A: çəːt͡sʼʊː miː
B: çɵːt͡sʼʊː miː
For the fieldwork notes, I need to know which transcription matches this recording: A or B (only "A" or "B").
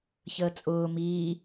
A